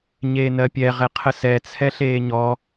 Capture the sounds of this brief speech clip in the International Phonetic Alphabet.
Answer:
ɲ eː n ɜ pʲ ɛ ʁ ɛ qʰ ə s ɛ t͡sʰ ɛ ɬ eː ɲ ɔ

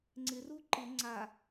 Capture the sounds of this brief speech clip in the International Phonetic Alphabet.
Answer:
ŋ͡ǀ ɪ r u ǃ ɪ ŋ͡ǀ a

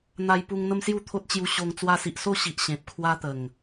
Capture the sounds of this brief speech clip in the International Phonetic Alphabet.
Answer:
n̪ a˧ j p u˧ ŋ n̪ ə˦ m s j u˥˧ t̪ʰ o˦ t̚ t͡ɕ j u˧ ɕ o˧ ŋ t͡s w a˧ s i˨ ʔ s o˥˧ ɕ i˨ ʔ ɕ ẽ˨ p̚ kʰ w a˦ t̪ ə˨˩ ŋ

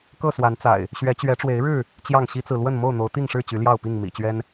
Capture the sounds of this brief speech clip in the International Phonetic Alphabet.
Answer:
k ɤ˥˨ s w a˨˦ n t͡s a̰˨˩ ɪ̯ | ɕ ɥ ɛ˨˦ t͡ɕ ɥ ɛ˨˦ ʈ͡ʂ w e˨˦ ɪ̯ ɻ ɻ̩˥˨ | t͡ɕ j ɑ˥˨ ŋ ɕ i˦ t͡s ɹ̩˨ l w ə˥˨ n m o˥˨ ʊ̯ n̪ o˨˦ ʊ̯ t̪ i˥˨ ŋ ʂ ɻ̩˥˨ t͡ɕ y˨˦ l j ɑ˥˨ ʊ̯ p i˥˨ ŋ m ḭ˨˩ t͡ɕ ɥ ɛ˦ n

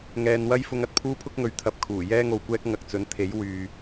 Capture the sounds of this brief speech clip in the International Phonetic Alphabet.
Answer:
ŋ ɛː˨ n w ɐ˥ j f ʊ˧ ŋ ɐ˨ t̚ pʰ uː˥ pʰ ʊ˥ k̚ ŋ ɵ˨ ɥ t̪ʰ ɐ˧ p̚ kʰ uː˨˩ j ɛː˥ ŋ o˨ w kʷ ɛː˥ k̚ ŋ ɐ˨ k̚ t͡s ɵ˨˥ n t̪ʰ e˨˥ j w yː˨

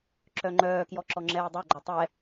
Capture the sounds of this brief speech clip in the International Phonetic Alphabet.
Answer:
ǁ œ ŋ͡ǃ œː k j ɔ ǁ ɔ ŋ͡ǁ ɛː dˤ ɜ ɡ͡ǃ ɔ tˤ ɛ

